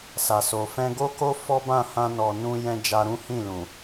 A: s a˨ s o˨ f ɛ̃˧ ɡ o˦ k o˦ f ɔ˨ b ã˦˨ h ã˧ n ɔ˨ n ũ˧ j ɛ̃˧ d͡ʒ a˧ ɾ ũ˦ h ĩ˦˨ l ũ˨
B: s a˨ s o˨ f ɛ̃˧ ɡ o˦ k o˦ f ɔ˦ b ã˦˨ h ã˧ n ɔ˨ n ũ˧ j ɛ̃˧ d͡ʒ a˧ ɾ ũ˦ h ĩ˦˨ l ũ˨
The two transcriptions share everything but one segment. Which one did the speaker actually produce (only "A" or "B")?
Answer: B